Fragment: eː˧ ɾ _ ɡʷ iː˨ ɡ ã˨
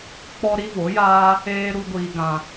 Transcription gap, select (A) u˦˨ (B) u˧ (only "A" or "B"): B